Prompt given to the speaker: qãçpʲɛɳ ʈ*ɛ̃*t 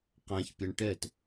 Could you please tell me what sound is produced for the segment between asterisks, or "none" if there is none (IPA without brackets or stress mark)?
ɛ